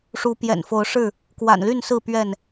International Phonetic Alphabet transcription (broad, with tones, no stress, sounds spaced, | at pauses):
ʂ u˨˦ p j ɛ̰˨˩ n f o˨˦ ʊ̯ ʂ ɻ̩˥˨ | k w a̰˨˩ n l y˥˨ n s ɹ̩˥˨ p ɥ ɛ˥˨ n